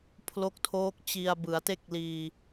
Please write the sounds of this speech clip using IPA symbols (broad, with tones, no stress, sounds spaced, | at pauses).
pʰ l o˦˥ k̚ tʰ oː˦˥ k̚ t͡ɕ i˧ a̯ b ɯ˩˦ a̯ t e˥˩ k̚ l iː˧